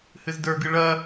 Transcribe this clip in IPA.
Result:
hɨzdə˞ɡɨ ɭɐ

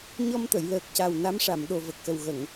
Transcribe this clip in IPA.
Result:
ɲɔ˧mt̪ə˨˩˨j ləː˨˩k̚ca˨˩w na˧˥mʂa˨˩˨m ɗo˨˩və˨˩k̚xə˨˩w ɣə˨˩˨ŋ

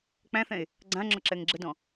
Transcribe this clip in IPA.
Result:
k͡pæ̃θɛ̃e̯ | ɡ͡ǀãŋ͡ǁɔǁɛŋ ɡ͡ǁədɔ̃

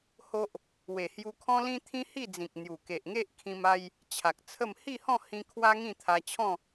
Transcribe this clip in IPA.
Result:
ho˦ʔ | we˨˩hju˧kʰɔ̃˦lĩ˦ t̪ʰĩ˦hi˥˧d͡zĩ˨k̚ n̪ju˨˩ ke˨ʔŋe˦ʔkʰĩ˧ma˧j | t͡ɕʰa˨k̚t͡sʰə˥˧m hi˥˧hɔ̃˥˧ hĩ˧ kʰwa˦ŋĩ˥˧ t̪ʰa˧t͡ɕʰɔ̃˥˧

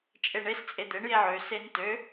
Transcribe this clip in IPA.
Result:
t͡ʃʼeɳes t͡sʼed̪eɳ jeʕø sentø

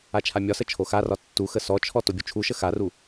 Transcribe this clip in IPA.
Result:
at͡ʃʰamʲɒsə t͡ʃʰoxarɒ tːu xəsɔt͡ʃʰɔ tobʲut͡ʃʰuʃə xaru

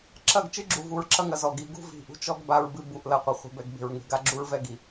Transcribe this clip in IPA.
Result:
ǁɐ˦˨ɡt͡ʃɨ˦ɡ͡ǁu˨ vu˨ɹ ǁɐ˦ŋɐ˨zɔ˨ɡi˨˦ ɡṳ˦vi̤˨ʔṳ˦t͡ʃɔ˦ɡ ba˦ɹbɨ˦ bu˨ʔlɐ˨qʷɘ˨ χʷi̤˨bɛ˨ɡbe̤˨ɹ ŋe̤˨ ɡa˦ɡ͡ǁu˦ɹvɛ˦ɡi˨

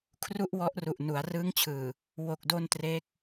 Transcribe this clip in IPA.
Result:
kʰru˥˩ʔwɔ˦˥ʔru˨˩ʔ nu˩˦a̯rɯː˦˥ŋt͡ɕʰɯː˨˩ | wo˨˩k̚do˧n tre˦˥k̚

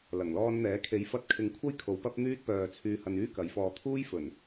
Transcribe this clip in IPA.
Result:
lɐ˨˩ŋlɔː˧nn̪ɛː˨˥ kʰe˨˥jfɐ˧t̚kʰɪ˨ŋkʷʰɐ˥j kʰo˨˥wpɐ˥p̚n̪yː˥t̚ pœː˨ t͡sʰyː˧hɐ˧nyː˥kɐ˨˧j fɔː˨t̪ʰuː˥jfɵ˨˩n

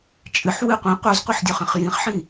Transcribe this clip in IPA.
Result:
t͡ʃʼɨħ wɨqʷĩ qʷœzqʷɨħdʲœχĩχ jĩχħĩ

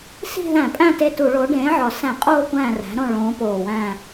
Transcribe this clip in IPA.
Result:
si̤˦˨ðæ̃˧˩˧pʼæ̃˦˨ te˦˨tu˧˩˧ɭo˨˥ ɖẽː˨˥ʕɒ˨˩ sæ̃˧˩˧qʼoː˦˨ kʷæ̃ː˦˨ræ̤˨˥ɾõ˦˨ ɭõː˨˥poː˨˩wæ̃˦˨

